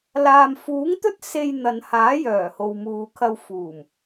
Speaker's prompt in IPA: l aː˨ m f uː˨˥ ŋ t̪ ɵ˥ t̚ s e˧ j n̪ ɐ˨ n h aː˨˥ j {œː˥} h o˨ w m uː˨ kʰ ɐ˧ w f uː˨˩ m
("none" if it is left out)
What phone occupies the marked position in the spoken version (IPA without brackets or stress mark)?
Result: œː˨˩